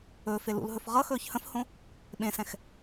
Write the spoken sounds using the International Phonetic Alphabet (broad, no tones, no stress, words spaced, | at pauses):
ɵ felṵlɦɵf ʁʌxɵːç hə̃fhõ | ɓẽsɛ̃x